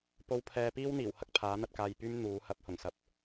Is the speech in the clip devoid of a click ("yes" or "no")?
yes